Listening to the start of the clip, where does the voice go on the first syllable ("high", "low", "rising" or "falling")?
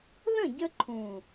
falling